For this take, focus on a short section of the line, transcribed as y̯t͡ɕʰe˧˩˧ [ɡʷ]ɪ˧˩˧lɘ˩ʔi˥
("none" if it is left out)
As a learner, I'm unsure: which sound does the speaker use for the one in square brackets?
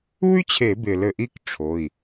b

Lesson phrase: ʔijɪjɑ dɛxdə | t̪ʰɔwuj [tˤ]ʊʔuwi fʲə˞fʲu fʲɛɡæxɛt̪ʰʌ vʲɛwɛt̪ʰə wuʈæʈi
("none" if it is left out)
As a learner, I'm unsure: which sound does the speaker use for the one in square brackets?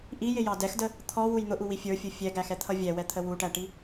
n̪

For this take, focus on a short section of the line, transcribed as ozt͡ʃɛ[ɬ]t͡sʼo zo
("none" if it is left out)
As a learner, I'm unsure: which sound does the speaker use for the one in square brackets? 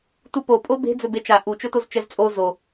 z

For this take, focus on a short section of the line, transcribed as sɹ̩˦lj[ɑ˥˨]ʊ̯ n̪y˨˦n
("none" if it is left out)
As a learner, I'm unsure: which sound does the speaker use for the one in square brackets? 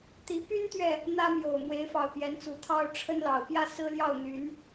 ɑ˥˨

